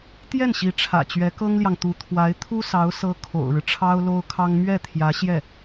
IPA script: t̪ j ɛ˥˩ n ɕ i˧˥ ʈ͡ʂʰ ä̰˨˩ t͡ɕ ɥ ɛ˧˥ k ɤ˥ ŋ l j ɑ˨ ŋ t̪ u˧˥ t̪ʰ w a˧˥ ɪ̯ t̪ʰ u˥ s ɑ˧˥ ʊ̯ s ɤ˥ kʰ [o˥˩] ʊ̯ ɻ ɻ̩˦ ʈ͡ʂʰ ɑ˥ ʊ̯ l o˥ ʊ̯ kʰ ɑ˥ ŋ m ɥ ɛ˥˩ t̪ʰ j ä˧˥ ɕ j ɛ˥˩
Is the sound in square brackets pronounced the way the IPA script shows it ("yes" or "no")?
no